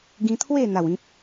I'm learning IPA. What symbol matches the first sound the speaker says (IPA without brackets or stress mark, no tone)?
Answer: ɡ